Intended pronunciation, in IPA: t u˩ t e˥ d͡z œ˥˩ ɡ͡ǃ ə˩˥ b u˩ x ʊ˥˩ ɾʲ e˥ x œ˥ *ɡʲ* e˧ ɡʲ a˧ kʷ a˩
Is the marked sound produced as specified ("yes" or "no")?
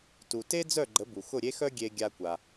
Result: yes